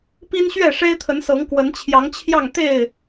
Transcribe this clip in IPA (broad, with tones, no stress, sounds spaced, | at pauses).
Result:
p i˦ n ɕ ɥ ɛ˥˨ ʂ e˦ ɪ̯ t̪ʰ ə˨˦ n s ɤ˨˦ ŋ k w ə˨˦ n t͡ɕʰ j ɑ˨˦ ŋ t͡ɕʰ j ɑ˥˨ ŋ t̪ e˥˨ ɪ̯